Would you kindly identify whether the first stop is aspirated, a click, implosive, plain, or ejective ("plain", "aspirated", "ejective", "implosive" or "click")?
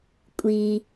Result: ejective